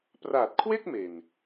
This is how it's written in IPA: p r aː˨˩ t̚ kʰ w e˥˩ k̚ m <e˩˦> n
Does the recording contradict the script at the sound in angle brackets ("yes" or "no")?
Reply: yes